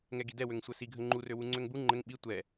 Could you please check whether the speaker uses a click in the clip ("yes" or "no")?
yes